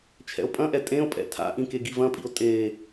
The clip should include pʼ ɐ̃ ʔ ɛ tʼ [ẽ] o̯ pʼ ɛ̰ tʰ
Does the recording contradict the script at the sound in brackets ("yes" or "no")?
no